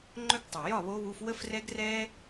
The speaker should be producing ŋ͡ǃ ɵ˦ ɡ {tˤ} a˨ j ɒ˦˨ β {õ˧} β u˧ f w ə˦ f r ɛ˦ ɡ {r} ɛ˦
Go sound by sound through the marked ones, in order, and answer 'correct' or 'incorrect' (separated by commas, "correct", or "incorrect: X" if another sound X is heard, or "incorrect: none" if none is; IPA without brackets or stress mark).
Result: correct, incorrect: o˧, correct